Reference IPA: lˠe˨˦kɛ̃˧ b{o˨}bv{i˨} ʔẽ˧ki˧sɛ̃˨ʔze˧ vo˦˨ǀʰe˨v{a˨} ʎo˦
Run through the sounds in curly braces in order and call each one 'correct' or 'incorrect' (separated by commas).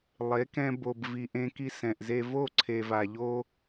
correct, correct, correct